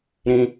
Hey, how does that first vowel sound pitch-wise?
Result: high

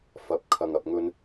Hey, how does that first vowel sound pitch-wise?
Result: rising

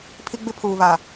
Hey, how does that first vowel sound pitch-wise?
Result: high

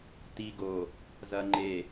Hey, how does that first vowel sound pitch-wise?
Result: low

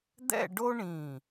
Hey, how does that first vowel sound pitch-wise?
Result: falling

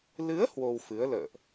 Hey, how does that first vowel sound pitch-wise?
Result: rising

